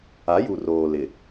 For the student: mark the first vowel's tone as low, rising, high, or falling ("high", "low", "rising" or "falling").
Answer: rising